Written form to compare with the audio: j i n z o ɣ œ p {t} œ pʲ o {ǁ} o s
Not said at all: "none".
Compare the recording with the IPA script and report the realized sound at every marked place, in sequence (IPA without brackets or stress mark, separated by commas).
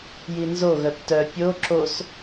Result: t, ǁ